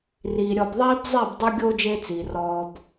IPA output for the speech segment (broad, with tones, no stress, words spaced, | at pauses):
riː˨ ɾʲɔ˨bðˤiː˦bzˤi˦˨b dˤu˦ɡʲo˦ d͡ʒe˦t͡siː˨rɔː˧b